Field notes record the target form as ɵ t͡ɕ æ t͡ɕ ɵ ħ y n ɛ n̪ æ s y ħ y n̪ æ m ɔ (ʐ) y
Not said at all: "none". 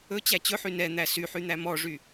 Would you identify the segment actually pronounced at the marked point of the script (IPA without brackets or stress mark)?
ʐ